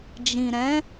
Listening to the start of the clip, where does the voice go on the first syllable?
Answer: low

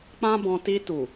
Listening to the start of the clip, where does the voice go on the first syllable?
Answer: high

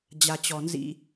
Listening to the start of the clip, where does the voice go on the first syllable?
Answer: low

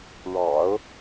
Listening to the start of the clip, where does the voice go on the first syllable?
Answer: low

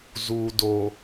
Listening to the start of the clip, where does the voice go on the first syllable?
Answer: low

